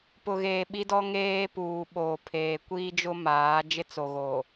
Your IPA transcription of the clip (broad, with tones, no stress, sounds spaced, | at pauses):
p ʊ˨ ɣ eː˨ ɓ i˦ d ɔ˦ ŋ eː˦ p uː˨ ɓ oː˨ pʰ eː˨ kʷ iː˦ d͡ʒ ʊ˦ m aː˨˦ d͡ʒ ɪ˦ t͡s o˨ ɣ o˨